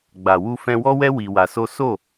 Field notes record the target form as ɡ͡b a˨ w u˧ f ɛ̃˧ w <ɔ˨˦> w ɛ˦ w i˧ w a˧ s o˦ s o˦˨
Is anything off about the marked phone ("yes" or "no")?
yes